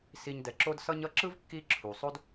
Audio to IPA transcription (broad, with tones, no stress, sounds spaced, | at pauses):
s i˨ ɲ d ɛ˩ ǁ o˦ d s ʌ˦ ɲ ʌ˦ ǁ ɯ˥ v kː i˥ ǁʰ u˩ sˤ o˥ d